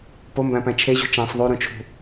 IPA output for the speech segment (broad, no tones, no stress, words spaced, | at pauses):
pombæ̃pæ̃ t͡ʃʰeʑṳ t͡ʃæ̃sˤ ðˤuɾũt͡ʃʰṳ